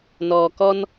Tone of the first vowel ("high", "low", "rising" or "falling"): low